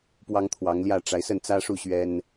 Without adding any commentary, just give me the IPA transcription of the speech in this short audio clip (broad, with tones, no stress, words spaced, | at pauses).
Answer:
pwɑ˥ŋt̪ʰwɑ˧˥ŋljä˥˩ ʈ͡ʂa˧˥ɪ̯sə˥˩nt͡sä˥ʂu˥˩ ɕɥɛ˥n